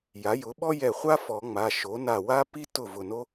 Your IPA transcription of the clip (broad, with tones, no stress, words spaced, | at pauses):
ja˩˥jʊ˩˥ ɓɔ˥jɛ˧˩χʷa˥ fɔ˨˩˦ ŋ͡ma˩˧˩ ʃo˩˥ na˧˩wa˥pi˥ tʊ˥˩vʊ˧˩no˥